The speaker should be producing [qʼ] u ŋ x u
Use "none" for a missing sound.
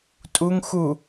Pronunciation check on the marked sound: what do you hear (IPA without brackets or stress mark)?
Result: tʼ